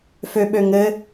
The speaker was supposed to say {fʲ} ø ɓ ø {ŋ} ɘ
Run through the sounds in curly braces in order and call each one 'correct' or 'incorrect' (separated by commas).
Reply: incorrect, correct